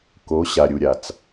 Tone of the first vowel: rising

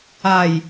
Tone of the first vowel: falling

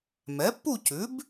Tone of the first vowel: rising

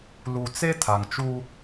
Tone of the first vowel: low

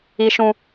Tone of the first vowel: high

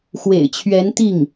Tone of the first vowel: low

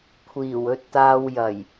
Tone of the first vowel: low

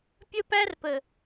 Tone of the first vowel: high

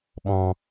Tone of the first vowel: high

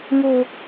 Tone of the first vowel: high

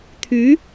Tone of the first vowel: rising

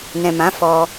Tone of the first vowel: low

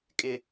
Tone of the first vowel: low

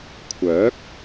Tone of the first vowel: rising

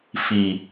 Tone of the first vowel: low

